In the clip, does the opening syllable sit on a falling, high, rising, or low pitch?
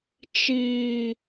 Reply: low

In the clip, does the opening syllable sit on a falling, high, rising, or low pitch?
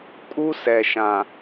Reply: high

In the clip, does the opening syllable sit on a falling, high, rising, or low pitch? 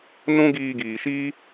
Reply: high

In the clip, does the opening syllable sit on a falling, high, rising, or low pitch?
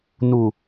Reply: low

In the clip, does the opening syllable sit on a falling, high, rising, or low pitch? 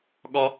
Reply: high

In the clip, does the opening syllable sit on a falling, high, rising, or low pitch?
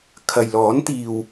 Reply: low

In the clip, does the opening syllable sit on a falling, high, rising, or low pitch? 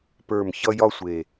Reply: low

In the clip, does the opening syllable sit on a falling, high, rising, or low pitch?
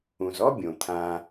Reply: low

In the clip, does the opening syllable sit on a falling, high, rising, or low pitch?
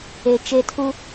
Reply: low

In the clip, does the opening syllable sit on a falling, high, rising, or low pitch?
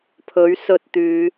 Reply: rising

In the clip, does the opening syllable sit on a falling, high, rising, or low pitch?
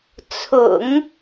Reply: low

